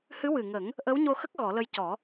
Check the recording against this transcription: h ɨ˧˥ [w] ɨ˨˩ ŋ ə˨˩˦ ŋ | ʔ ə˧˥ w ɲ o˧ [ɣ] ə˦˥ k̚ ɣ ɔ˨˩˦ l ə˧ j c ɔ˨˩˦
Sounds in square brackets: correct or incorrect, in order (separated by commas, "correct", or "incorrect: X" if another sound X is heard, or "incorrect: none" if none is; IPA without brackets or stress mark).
correct, incorrect: x